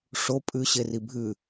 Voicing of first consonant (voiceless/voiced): voiceless